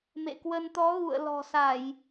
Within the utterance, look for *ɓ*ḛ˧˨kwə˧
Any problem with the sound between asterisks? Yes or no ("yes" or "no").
yes